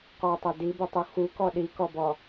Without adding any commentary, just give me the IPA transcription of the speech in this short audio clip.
q ɔ tˤ ɛ d i b ɯ tˤ u x u k ɔ ɗ i k ɔ b ɔ

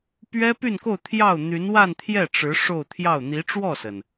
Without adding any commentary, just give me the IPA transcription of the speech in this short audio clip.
p ɥ ɛ˥ p y˥˧ n k o˥˧ ʊ̯ t̪ʰ j ɑ˥˩ ʊ̯ n̪ y˧˥ n w a˥˧ n t̪ʰ j ɛ˥˩ ʈ͡ʂ ɻ̩˧˥ ʂ o˥˧ ʊ̯ t̪ʰ j ɑ˥˩ ʊ̯ n̪ i˧˥ ʈ͡ʂ w ɔ˥˩ s ə˩ n

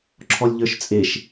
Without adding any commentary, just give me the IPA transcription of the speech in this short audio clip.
ǁʰ ɔ lʲ ʎ ə˞ ʃ t͡sʼ e ʃ

